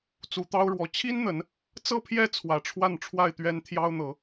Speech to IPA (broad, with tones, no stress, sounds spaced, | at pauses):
t͡s u˨˦ t̪ ɑ˦ ʊ̯ ɻ w ɔ˨˦ t͡ɕʰ i˦ n n̪ ə˨˦ n | t͡s ɤ˥˨ pʰ j ɛ˥˨ t͡sʰ w ä˨˦ ʈ͡ʂʰ w a˥˨ n ʈ͡ʂʰ w a˥˨ ɪ̯ t̪ ɥ ɛ˦ n t̪ʰ j ɑ˦ ʊ̯ n̪ ɤ˨˦